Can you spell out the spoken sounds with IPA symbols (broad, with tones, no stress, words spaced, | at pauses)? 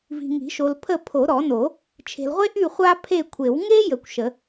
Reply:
vi̤˨ŋi̤˨˩˦ʃo˨l pʰə˦˨pʰo˨˩˦ɾɔ˨˩˦no˨˩˦ | t͡ʃʰe̤˨lʁʷe˦ʔy˦˨ χʷa˦pʰe˦˨kʷʰe˨˩˦w ŋe˦ jə˨˩˦kʷʃə˨˩˦